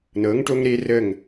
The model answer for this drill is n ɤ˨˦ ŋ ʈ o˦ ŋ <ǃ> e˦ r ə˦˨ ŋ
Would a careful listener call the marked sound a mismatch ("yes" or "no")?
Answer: yes